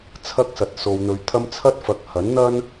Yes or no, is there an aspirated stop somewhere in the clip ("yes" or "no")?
yes